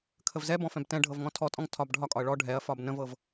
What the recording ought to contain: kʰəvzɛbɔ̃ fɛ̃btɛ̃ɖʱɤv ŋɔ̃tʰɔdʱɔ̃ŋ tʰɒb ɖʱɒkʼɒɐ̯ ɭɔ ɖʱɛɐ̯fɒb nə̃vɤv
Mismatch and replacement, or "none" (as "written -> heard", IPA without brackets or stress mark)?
dʱ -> tʼ